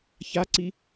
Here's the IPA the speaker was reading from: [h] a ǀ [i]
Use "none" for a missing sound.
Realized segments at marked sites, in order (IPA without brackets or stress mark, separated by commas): ç, i